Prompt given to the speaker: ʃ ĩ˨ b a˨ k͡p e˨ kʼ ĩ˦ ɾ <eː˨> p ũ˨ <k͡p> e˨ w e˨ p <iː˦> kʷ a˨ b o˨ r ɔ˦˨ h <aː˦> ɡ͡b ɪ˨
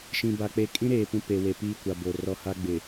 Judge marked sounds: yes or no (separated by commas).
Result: yes, no, yes, no